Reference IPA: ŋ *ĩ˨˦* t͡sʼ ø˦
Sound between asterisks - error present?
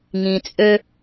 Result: yes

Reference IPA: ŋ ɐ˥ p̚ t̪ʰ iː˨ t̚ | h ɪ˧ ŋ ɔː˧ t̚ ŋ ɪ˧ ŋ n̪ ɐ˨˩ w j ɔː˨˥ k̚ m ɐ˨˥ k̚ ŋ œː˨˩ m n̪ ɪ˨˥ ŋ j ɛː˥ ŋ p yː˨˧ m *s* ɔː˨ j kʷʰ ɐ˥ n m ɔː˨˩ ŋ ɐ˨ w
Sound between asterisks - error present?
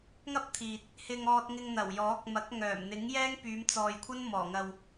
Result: yes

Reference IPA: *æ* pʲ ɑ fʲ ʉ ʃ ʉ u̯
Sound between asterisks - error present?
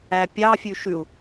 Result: no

